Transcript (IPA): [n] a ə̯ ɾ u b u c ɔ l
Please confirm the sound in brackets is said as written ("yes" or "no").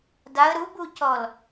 no